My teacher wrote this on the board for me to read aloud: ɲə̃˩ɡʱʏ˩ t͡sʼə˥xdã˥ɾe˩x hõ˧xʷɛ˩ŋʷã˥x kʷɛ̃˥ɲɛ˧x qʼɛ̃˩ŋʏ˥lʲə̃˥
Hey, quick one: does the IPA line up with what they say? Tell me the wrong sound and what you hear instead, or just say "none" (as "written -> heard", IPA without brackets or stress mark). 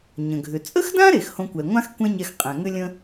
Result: xʷ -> kʷ